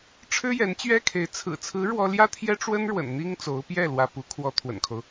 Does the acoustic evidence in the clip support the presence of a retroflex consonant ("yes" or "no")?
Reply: yes